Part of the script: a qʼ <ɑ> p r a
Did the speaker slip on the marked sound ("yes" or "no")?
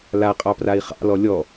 no